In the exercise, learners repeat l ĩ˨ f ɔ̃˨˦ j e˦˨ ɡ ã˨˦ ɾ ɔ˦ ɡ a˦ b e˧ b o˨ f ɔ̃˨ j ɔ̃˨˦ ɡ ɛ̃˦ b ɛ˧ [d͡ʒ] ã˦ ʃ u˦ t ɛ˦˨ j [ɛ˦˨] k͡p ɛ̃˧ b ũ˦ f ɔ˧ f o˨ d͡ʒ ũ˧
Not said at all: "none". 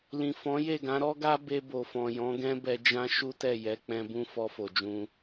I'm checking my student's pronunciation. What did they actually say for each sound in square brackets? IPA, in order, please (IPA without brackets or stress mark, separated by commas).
d͡ʒ, ɛ˨˦